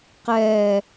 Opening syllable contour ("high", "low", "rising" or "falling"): high